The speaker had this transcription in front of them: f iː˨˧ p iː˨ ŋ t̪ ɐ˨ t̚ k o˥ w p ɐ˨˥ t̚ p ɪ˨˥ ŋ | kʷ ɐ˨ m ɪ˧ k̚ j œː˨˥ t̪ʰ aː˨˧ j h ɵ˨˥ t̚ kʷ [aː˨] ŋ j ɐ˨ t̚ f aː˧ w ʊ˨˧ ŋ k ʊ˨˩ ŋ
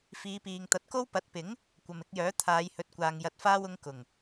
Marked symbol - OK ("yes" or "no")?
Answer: yes